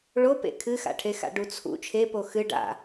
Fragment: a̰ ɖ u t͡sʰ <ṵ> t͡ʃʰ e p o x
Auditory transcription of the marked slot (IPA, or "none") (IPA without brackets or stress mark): ṵ